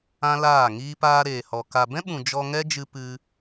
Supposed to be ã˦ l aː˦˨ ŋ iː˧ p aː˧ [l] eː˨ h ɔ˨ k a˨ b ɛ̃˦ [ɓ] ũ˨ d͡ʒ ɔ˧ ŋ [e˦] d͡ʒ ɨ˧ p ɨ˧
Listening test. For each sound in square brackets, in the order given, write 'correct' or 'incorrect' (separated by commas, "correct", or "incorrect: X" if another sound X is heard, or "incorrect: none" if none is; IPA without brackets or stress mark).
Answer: incorrect: ɾ, correct, incorrect: ɛ˦